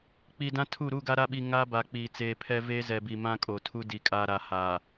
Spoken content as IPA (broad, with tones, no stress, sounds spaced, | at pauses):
k͡p i˨ d ã˦ tʰ u˦˨ ɾ u˦˨ ɡ a˦ ɾ a˦ ɓ i˨ ŋ a˦ b a˨ k͡p iː˨ t͡s eː˨ pʰ ɛ˦ v eː˦ z ɛ˨ b i˨ m ã˦ kʼ o˨ tʰ u˦ d i˨ kʼ a˨ ɾ a˨ h aː˨